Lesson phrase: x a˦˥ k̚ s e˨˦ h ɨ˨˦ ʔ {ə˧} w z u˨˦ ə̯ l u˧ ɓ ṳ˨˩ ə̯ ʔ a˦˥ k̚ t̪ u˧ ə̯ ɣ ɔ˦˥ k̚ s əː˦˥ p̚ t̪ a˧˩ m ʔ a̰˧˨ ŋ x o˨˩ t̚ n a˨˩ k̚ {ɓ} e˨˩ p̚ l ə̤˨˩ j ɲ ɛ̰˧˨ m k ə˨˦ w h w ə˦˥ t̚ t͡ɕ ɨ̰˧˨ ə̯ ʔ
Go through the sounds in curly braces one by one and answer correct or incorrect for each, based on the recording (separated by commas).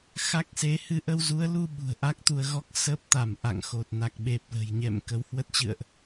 correct, correct